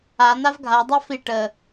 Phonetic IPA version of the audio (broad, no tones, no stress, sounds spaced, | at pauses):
a n̪ a v ɡʱ a dˤ a f i ʈ ə